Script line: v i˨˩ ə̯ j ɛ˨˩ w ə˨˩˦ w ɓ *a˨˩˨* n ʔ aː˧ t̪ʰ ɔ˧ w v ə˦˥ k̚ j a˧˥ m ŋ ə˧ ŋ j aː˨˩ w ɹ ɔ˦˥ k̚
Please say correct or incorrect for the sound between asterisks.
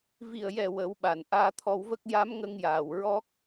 correct